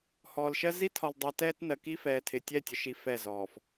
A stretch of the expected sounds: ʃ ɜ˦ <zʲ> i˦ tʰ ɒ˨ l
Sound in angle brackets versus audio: incorrect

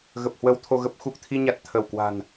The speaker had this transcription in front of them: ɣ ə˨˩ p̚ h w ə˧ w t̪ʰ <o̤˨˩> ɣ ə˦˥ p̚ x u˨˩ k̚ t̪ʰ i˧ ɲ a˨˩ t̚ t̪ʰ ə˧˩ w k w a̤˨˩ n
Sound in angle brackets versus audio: incorrect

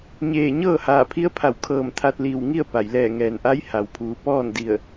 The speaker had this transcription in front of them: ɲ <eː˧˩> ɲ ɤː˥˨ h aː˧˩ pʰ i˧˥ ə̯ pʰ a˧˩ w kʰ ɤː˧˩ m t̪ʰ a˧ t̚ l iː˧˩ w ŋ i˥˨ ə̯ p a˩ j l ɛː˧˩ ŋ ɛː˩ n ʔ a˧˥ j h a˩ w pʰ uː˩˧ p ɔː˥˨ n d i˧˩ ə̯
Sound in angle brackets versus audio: correct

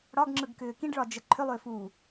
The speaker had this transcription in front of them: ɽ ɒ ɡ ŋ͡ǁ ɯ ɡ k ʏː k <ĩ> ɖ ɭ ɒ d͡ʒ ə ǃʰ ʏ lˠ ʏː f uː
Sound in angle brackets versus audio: correct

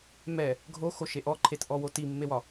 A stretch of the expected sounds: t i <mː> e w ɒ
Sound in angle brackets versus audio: correct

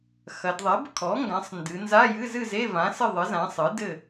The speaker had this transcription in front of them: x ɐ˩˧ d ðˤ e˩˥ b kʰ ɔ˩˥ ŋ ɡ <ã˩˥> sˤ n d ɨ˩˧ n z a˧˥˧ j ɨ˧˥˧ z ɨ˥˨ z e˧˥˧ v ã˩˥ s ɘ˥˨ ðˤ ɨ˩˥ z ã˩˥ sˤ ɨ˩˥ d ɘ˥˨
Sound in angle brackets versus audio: correct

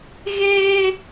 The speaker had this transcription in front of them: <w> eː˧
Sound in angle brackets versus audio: incorrect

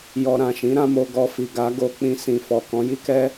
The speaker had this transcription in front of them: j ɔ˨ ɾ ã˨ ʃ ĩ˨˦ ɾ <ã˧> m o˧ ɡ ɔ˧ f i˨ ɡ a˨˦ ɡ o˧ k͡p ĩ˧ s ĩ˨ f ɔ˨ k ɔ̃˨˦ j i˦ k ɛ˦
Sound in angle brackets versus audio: correct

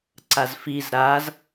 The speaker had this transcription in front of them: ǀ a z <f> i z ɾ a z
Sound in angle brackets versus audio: correct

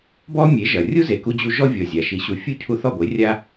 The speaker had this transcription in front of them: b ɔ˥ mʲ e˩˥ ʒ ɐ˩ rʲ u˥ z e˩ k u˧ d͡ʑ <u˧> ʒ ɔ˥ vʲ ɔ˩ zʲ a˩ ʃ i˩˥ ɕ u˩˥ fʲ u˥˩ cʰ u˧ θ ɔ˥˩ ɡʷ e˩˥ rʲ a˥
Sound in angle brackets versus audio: correct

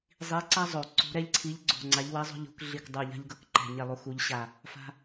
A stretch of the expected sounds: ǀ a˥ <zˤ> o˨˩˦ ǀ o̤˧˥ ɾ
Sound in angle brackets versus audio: correct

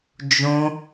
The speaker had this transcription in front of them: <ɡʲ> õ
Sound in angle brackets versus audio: incorrect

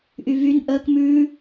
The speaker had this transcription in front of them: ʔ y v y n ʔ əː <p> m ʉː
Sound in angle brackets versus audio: incorrect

